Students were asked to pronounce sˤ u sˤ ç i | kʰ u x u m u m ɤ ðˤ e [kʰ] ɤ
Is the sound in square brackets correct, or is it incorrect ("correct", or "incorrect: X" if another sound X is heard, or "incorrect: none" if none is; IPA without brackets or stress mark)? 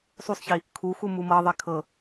correct